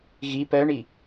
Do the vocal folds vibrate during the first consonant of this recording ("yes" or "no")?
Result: yes